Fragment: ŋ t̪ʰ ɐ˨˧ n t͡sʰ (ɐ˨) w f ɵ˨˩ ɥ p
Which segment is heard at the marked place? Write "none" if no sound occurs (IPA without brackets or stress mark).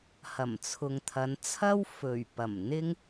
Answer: ɐ˥